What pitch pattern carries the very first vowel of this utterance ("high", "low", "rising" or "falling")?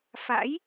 rising